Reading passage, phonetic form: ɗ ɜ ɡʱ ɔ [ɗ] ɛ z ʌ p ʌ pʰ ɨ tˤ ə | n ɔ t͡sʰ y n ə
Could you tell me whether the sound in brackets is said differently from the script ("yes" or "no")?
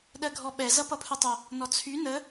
yes